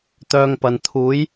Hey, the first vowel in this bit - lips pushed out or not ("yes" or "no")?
yes